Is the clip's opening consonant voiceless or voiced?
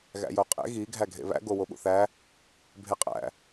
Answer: voiced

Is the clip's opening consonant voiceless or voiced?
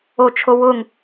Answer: voiceless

